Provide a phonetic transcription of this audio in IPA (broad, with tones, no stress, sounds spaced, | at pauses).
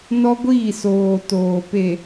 n ɔ˦ ɡʷ iː˦˨ s oː˨ t oː˨ p e˨